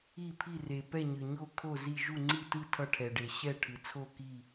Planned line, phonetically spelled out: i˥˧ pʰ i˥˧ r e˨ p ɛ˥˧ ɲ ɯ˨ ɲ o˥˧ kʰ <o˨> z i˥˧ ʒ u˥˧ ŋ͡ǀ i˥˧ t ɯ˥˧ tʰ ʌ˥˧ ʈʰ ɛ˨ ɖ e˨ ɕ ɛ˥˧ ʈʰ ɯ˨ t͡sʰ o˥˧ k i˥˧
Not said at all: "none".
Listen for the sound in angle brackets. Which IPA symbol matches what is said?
o˥˧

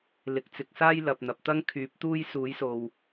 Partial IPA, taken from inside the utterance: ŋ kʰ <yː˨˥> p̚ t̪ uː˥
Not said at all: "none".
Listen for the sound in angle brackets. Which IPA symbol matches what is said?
yː˨˥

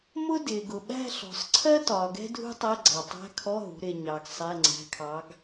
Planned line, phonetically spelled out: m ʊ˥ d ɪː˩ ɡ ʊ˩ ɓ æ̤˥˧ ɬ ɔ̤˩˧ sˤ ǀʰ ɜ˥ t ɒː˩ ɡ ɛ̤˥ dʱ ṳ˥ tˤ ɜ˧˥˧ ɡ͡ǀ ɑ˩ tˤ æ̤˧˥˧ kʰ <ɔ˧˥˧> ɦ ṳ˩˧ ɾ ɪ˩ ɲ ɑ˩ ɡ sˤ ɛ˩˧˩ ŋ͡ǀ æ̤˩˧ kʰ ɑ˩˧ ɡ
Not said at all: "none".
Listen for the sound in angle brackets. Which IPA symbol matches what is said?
ɔ˧˥˧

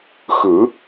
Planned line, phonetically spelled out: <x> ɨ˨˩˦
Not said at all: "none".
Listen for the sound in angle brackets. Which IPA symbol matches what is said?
x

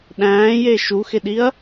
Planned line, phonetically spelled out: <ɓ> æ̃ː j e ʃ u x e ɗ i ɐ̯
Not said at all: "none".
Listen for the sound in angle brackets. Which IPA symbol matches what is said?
ɗ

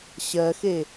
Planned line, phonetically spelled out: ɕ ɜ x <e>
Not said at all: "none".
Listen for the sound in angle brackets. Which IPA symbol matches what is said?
e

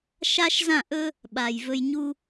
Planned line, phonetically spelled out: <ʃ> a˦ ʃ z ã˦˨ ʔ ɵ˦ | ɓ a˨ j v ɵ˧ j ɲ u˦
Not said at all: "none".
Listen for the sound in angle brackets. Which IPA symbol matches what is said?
ʃ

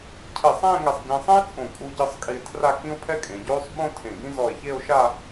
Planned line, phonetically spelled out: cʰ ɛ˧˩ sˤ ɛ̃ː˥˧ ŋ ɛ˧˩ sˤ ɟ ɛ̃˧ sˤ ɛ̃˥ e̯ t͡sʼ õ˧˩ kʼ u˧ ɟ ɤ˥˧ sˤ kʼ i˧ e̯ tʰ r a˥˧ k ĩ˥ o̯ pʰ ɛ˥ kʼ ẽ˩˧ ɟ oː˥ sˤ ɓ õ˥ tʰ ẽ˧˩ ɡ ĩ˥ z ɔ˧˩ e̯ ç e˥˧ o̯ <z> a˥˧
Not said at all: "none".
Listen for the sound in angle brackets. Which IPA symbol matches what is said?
ʃ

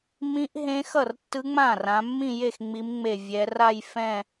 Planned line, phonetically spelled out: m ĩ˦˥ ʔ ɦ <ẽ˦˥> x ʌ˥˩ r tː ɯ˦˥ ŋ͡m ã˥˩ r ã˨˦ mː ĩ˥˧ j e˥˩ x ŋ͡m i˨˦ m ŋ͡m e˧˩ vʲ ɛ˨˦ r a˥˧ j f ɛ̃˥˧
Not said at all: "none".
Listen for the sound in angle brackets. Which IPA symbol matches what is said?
ẽ˦˥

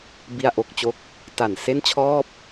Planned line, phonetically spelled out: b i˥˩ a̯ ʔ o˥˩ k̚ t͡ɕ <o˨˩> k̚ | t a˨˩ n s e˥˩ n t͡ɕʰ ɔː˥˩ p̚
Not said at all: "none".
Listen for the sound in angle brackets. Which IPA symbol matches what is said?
o˥˩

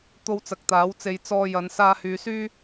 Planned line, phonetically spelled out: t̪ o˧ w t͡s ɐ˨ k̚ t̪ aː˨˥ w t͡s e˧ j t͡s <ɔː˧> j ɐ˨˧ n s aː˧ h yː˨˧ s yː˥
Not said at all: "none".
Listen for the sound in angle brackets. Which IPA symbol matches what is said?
ɔː˧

